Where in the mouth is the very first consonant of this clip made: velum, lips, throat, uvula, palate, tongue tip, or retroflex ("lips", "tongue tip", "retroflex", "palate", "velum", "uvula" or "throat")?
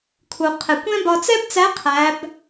velum